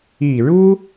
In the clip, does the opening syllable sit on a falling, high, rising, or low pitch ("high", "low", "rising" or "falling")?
low